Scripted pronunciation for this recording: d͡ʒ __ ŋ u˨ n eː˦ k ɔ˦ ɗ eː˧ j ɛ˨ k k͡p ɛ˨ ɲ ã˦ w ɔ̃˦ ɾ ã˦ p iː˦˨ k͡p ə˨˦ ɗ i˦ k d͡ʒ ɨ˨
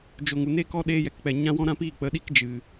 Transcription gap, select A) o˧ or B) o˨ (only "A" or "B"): B